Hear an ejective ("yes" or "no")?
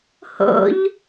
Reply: no